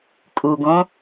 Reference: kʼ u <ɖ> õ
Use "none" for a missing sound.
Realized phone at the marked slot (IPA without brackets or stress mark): ɡ